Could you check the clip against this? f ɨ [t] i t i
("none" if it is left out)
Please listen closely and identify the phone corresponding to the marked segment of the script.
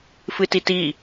t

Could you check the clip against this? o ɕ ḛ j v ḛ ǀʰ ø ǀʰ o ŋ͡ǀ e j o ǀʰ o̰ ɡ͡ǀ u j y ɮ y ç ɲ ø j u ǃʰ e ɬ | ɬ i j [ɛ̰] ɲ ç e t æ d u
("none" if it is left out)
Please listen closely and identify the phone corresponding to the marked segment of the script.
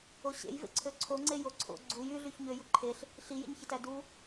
ḛ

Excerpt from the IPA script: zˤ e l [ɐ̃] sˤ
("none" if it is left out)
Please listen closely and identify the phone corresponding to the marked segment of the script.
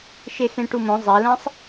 ɐ̃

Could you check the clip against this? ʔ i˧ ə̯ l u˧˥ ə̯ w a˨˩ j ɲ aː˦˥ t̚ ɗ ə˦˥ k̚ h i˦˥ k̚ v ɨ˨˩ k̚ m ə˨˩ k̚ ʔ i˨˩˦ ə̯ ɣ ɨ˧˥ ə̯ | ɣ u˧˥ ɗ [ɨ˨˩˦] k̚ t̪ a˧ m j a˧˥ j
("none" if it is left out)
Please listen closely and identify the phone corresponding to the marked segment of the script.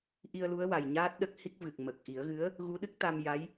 ɨ˦˥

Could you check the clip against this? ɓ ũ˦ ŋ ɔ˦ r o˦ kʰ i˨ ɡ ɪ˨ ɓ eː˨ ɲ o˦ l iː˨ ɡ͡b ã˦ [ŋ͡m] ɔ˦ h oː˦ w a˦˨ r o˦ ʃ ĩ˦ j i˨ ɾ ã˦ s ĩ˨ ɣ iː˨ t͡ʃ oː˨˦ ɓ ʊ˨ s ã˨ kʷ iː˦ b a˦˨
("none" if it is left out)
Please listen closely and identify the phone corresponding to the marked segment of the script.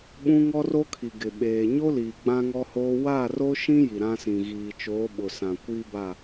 ŋ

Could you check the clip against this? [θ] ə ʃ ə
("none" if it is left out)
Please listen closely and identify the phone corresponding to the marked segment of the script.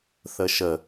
θ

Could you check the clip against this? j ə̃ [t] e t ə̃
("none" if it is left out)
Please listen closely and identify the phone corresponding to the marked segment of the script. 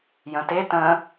t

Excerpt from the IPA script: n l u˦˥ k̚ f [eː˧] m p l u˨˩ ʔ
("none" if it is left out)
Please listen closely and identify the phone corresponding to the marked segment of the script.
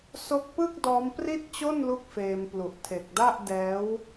eː˧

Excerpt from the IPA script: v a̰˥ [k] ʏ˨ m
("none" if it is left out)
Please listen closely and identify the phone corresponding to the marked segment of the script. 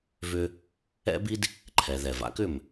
k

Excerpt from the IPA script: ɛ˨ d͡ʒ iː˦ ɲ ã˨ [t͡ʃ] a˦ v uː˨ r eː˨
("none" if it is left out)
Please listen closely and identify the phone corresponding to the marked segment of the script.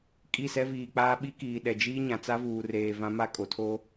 t͡s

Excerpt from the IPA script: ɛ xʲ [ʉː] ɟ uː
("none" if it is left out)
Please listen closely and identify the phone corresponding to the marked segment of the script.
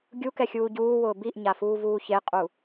uː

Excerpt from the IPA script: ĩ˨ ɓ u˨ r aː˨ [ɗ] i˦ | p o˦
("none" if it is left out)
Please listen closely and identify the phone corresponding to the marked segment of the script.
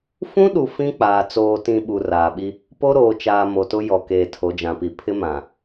ɓ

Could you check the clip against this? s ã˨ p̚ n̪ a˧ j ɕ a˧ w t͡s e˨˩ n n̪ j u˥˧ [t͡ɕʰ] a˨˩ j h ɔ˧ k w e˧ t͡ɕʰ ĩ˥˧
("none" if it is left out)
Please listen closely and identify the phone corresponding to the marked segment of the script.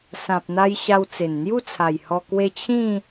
t͡sʰ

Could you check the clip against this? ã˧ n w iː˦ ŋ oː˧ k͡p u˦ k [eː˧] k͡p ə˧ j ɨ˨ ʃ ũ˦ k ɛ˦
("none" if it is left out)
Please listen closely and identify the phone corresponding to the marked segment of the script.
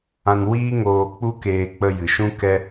eː˧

